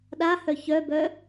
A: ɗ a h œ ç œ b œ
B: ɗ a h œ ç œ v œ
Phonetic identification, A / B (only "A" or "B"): A